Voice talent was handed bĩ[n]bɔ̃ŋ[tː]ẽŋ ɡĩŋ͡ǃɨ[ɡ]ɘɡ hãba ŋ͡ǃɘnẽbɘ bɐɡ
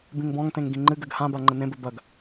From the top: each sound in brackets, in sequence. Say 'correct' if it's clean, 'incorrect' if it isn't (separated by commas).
incorrect, incorrect, correct